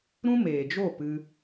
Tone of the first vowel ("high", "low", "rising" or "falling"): high